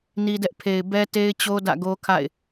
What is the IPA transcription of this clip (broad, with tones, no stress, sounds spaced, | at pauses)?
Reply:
n i˦ d ɛ˦ ʔ pʰ e˨ ɪ̯ b ɛ˦ t e˦ ɪ̯ t͡ɕ o˦ d ä̰˦˨ ɡ o˦ kʰ a̰˦˨ ɪ̯